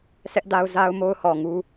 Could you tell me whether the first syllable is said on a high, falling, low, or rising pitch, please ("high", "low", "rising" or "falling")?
high